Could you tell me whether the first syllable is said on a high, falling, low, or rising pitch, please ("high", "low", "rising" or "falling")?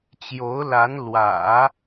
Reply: rising